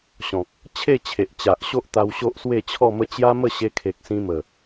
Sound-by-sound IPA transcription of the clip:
ɕ ɔ̃˨ k̚ | t͡ɕʰ e˥˧ t͡ɕʰ e˨ ʔ t͡ɕ a˨ ʔ ɕ o˦ ʔ t̪ a˧ w ɕ o˦ ʔ s w e˥˧ t͡ɕʰ ɔ˥˧ m ə˥˧ t͡ɕ j a˦ m ə˥˧ ɕ e˧ kʰ e˨ k̚ s ĩ˧ m ə˨˩

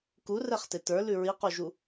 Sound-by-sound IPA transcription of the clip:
k u r ɛ χ t e t ə˞ l ʉ ɹ i q u ʒ u

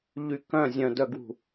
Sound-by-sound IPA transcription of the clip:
ʎ y k œ̃ zʲ œ̃ d œ ɡ w ṳ

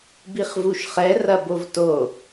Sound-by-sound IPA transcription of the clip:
b i χ v u ʃ χ ɛ r ɐ b o v t o

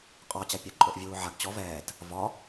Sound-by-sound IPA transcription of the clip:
qʼ ɒ t͡ɕ a pʲ ɐ ǃʼ o ʔ vʲ uː ʕ a ɡ t͡ɕ ɔ v ɛː t | v ɒ

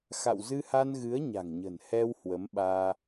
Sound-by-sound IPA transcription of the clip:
x a̰˧˨ w z ɨ˧ h a˧ n ɣ ɨ˨˦ ə̯ ɲ a̤˨˩ ŋ ɲ ə̤˨˩ n h ɛ˧ w h w ə˨˦ m ɓ aː˧

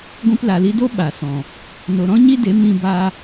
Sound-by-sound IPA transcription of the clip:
ɡʷ ĩ˧ p l a˨ l i˧ d o˦ ɓ a˨ s ɔ̃˨ | n o˨ ɾ ɔ̃˦ ɲ i˦ d e˨˦ m ĩ˧ b a˧

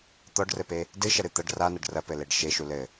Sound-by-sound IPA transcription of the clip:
t̪ ɔ ɖ r ɘ p e | d ɨ ʃ ɐ ɾ ɨ t̪ ɐ ɖ r a n ɐ ɖ r ɐ p ɘ l e ɖ ʃ e ʃ u l ɘ

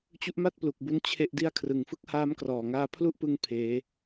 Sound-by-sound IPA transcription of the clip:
t͡ɕ u˦˥ ʔ m a˥˩ t̚ p l u˨˩ k̚ b u˧ n t͡ɕʰ e˥˩ ʔ d i˥˩ a̯ kʰ r ɯ˨˩ ŋ f ɯ˥˩ k̚ h aː˦˥ m k r ɔː˨˩ ŋ aː˧ pʰ l u˥˩ ʔ p ɯ˥˩ ŋ pʰ eː˦˥

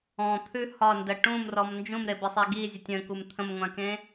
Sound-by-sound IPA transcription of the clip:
ɔ̃ t̪ʰ ʉ h ɒ n d ə ʈ ũ m r ɔ m n d͡ʒ ũ m ɾ e b ɘ sˤ e ɡ i zʲ ə tʲ ə̃ k u m t̪ʰ ə̃ m ŋʷ ã k ẽ

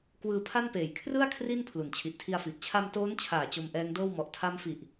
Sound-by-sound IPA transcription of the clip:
k w ɯː˧ pʰ a˥˩ n p eː˨˩ j kʰ r ɯ˥˩ a̯ kʰ r i˥˩ n pʰ l u˩˦ n t͡ɕʰ i˨˩ ʔ tʰ i˧ a̯ f i˨˩ ʔ t͡ɕʰ a˧ m t oː˦˥ n t͡ɕʰ aː˨˩ t͡ɕ o˧ m ʔ ɛː˦˥ ŋ d ɤː˥˩ w m ɔ˨˩ ʔ tʰ a˦˥ m f i˨˩ ʔ

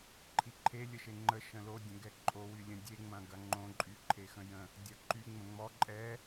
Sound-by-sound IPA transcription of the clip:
ǃʰ i ǃʰ e lʲ ə ʃ e ŋ͡ǃ ə ʃ ə̃ l o dʲ ə̃ ɡ ɛ ǃʼ o w y lʲ ə̃ dʲ e ŋ͡m ɐ̃ ɡ ɐ ŋ͡ǃ õ ǃʼ y ǃʰ e x ə̃ j ə̃ | dʲ ɐ ǃ y ŋ͡m ə̃ ŋ͡m ɔ ǃʼ ɛ

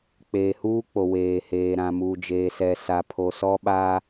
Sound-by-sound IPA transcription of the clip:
k͡p eː˨ h uː˦ k͡p o˨ w eː˨ h eː˨ ɾ ã˨ m uː˨ d͡ʒ eː˨ s ɛ˨ s a˨ pʰ o˨ s ɔ˦ ɓ a˦

